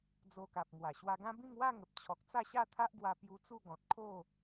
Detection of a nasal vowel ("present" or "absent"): present